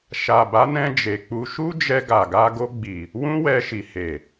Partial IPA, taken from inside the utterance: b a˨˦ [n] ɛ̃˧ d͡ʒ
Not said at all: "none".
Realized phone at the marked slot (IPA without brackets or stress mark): n